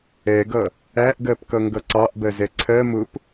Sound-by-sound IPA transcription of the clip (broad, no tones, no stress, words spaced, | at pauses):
ɛɡʌ | æʔɡɜpkʌŋɡʌ ǀɑʔbɜzɛ ǀʰɜ mʊp